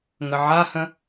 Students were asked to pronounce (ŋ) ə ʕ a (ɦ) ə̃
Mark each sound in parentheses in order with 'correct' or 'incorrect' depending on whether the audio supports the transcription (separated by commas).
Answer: correct, incorrect